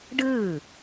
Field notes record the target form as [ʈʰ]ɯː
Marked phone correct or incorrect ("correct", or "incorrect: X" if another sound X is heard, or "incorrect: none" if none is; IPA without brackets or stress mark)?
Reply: incorrect: ɖ